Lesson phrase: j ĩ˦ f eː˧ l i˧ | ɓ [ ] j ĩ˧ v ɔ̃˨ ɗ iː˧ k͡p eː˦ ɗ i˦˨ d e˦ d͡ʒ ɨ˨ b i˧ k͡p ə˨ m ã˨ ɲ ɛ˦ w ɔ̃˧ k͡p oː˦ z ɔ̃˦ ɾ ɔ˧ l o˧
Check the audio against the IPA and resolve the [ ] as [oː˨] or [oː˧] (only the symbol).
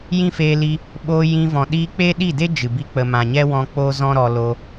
oː˧